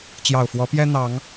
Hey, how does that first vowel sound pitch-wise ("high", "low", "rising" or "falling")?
low